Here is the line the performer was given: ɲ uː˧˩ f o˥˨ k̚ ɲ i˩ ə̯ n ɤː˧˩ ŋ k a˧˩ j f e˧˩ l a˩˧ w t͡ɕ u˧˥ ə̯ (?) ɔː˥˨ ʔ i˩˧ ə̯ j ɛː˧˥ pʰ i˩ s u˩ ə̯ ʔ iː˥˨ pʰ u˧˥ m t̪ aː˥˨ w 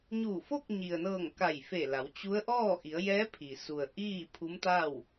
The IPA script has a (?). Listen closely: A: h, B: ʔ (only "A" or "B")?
B